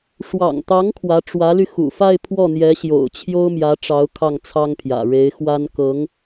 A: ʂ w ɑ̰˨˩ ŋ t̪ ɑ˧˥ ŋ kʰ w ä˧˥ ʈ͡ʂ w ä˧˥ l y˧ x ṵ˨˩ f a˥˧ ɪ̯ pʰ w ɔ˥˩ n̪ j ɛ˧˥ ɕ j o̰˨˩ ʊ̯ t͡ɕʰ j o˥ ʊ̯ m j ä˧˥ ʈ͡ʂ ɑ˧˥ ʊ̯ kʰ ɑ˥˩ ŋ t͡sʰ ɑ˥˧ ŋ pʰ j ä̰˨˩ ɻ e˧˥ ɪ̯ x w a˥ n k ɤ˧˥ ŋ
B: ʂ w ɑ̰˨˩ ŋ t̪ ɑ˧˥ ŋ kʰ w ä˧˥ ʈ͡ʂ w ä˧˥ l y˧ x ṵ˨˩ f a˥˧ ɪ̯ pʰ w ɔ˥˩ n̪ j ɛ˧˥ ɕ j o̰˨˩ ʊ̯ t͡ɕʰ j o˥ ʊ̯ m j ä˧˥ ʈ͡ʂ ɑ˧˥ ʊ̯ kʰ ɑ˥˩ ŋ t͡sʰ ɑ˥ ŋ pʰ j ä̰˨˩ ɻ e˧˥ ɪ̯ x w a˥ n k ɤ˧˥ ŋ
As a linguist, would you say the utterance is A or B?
B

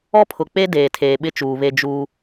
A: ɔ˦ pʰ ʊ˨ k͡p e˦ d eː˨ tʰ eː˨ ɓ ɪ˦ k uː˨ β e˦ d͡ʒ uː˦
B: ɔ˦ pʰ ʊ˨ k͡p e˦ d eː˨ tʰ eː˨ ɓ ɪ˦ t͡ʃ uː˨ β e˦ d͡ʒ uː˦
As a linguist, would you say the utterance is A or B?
B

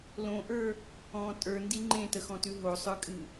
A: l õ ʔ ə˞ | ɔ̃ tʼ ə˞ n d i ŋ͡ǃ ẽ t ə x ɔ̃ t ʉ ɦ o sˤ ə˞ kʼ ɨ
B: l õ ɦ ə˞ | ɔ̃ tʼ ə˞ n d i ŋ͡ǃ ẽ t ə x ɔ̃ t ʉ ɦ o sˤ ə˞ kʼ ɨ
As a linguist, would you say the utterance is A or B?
A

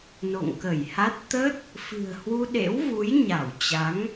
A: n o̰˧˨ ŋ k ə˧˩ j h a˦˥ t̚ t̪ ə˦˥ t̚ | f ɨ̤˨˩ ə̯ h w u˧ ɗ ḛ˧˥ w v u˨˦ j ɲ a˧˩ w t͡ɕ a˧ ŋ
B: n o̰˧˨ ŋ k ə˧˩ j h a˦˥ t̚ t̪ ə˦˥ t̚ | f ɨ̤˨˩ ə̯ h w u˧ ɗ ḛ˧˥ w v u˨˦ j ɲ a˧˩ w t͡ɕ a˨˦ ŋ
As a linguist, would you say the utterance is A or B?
B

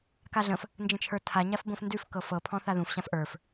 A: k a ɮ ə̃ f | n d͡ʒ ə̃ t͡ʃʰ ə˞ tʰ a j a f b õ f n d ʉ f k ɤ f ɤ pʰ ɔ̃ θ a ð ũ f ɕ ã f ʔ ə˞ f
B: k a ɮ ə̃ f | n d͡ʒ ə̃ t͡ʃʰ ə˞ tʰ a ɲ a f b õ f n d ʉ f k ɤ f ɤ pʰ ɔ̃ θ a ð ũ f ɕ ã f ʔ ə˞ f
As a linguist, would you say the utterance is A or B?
B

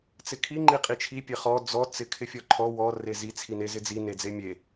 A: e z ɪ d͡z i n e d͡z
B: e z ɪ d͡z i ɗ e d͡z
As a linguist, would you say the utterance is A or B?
A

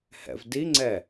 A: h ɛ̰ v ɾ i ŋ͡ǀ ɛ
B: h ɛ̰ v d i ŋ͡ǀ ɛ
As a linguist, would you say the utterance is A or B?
B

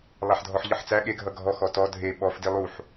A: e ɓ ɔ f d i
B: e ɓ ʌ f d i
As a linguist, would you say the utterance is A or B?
A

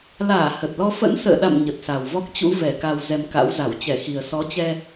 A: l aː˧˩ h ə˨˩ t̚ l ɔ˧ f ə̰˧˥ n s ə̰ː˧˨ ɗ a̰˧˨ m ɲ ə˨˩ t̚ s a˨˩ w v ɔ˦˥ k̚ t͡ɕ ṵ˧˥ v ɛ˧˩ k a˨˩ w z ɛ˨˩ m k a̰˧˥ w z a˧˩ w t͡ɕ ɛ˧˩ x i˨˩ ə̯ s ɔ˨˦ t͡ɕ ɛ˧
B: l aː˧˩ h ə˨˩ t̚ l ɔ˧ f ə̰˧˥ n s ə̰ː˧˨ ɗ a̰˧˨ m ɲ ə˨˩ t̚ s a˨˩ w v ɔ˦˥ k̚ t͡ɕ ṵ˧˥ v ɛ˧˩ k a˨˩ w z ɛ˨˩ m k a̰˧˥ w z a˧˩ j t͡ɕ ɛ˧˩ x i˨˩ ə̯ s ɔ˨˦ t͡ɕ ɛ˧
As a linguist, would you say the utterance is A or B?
A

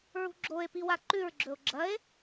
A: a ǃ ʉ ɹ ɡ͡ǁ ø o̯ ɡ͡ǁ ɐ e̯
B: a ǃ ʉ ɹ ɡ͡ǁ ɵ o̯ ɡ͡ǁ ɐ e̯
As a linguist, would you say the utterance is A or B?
B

